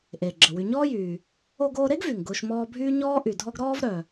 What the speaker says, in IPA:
ʔeː˩ɡ͡ǁə˩wy˨ ɲɔː˥jyː˨ | o˦ɡoː˦ ɾe˥ɡvy˩ŋɡʊː˨ʃ mɔː˦bʱyː˥ ɲɔː˥ʔy˨dʱɔ˥ɡ ɾɔː˥vɾœ˨

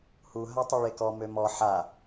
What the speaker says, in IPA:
hu ɦatˤiɭekɔ mømɔ ħa

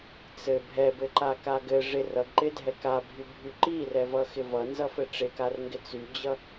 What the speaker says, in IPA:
t͡sɘ bʱɛbɘǃaka ɡɘ ʐɪr ʌɡǃɪdʱɛ kabʱybʱy ǃirɛvʌxɪ vʌnzʌfɘ ʈ͡ʂɪkarŋɡɪ t͡syd͡ʑʌ

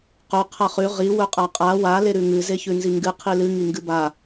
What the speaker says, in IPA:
qɵ qʰɐχʉ ʁi wɵqʼaqʼa wa leɾʉŋɨ zeçʉnziŋɡɨ qʰilɨ ŋiŋɡɨba

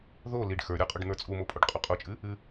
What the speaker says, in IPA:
ðo liɖ xə˞ɾʲə˞qʼuɖ n̪ə˞t͡sʼumopʼuɖ qʼuqʼut͡ʃʼɨ | ɨ

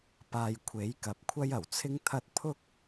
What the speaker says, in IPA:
paː˨jkʷʰe˨˥jkɐ˨p̚ kʷʰɐ˥jɐ˨˩w t͡sʰɪ˥ŋt̪ʰɐ˥t̚ pʰʊ˥k̚

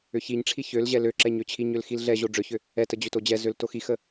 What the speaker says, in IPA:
ʏçiɲʈ͡ʂʰi çøl ʑɛløǁɛɲ øt͡ɕʰiɲøl xilɮɛʑo ɖ͡ʐøçʏ | ɛtə d͡ʑʏtod͡ʑɛzøl toxixə

